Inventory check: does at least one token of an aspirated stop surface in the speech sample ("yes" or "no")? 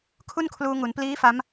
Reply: yes